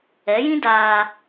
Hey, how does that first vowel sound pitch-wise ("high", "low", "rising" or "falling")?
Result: rising